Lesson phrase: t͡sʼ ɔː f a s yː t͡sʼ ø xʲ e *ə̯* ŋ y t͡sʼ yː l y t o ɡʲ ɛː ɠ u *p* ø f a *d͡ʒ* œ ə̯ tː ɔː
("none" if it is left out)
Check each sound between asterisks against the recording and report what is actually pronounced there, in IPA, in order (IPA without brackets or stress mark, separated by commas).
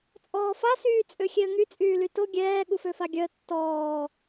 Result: ə̯, f, ɡʲ